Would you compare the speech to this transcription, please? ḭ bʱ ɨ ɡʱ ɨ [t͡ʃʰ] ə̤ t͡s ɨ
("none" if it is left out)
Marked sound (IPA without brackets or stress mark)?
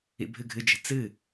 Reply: d͡ʒ